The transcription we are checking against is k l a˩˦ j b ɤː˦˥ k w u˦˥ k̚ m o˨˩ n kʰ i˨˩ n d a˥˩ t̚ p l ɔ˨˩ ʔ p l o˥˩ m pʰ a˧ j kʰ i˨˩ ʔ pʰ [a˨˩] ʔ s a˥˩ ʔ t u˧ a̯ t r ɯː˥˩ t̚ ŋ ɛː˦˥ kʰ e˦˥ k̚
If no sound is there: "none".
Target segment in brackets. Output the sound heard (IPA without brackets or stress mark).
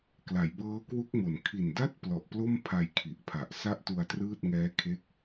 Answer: a˨˩